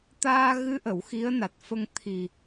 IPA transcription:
t̪aː˧ɣɨ˧˥ʔə˨˩˨w xi˧˥ə̯na˨˩t̚fə˧ŋ t̪ʰi˨˩

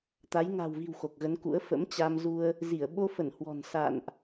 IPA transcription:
t̪a˨˦j ŋa̤˨˩wvi̤˨˩w xo˨˩k̚ɣə˨˦nkṵ˧˥ə̯ fə̰˧˥mt͡ɕa˧mzu˧ə̯ | zi˧˩ə̯ ɓo˧fə˧˩n hwɔ̤˨˩n sa̰ː˧˨nʔ

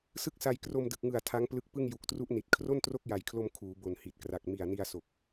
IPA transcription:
sɯ˥˩k̚sa˧j kro˧mdɯ˨˩k̚ŋɯ˨˩a̯ tʰa˦˥ŋplɯ˦˥k̚pɯ˥˩ŋ ju˨˩k̚tru˦˥ʔni˨˩t̚ kʰro˥˩ntro˥˩k̚ja˨˩jkʰlo˧m kʰuː˩˦bo˨˩nhi˨˩t̚kra˨˩k̚ mi˨˩a̯ni˧a̯ so˨˩k̚

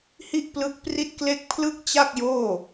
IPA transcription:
hi˥˩ʔplɯ˦˥k̚pri˥˩t̚kle˥˩k̚ pʰlɯ˥˩k̚t͡ɕa˥˩k̚joː˥˩

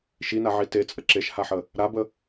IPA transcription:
ʃinaʕi tet͡sʼə ǁeʃhaħə | ɾabə

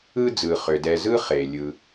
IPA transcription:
ɯ˦ d͡zɯ˩χʏ˩dɛ˨zɯ˥ χe˩ lʲɯ˨

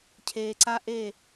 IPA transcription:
cʰeː˨ǀa˦ʔe˦˨

